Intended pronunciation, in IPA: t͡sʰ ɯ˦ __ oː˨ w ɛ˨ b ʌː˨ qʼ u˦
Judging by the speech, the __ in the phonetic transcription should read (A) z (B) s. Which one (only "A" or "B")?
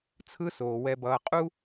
B